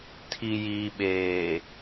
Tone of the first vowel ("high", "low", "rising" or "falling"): low